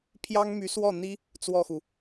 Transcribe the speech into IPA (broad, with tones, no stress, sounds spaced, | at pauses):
pʰ j ɑ˥ ŋ m y˧˥ s w ɔ˥˩ n̪ i˥ | t͡s w ɔ˥˩ x u˩